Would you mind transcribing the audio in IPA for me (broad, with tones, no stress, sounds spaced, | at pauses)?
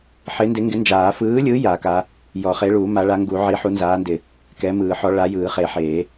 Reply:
ħ ɪ˨˥ n d ɪ˨˥ ŋ ɡ ɪ˨˥ n d͡ʒ aː˨˩˦ f ɯː˨˥ lʲ ɯ˨˥ j a˨˩˦ k a˨˥ | j ɔ˨˩˦ χ e˨˥ ɭ uː˨˩˦ m a˨˥ ɭ a˨˥ ŋ ɡ u˨˩˦ ʕ i˨˥ ħ u˨˥ n z aː˨˥ n d ɪ˨˩˦ | k ɛ˨˥ m ɯː˨˩˦ ħ ɔ˨˥ ɭ a˨˥ j ɯː˨˩˦ χ e˨˩˦ ħ eː˨˩˦